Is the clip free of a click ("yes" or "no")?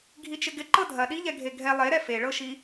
no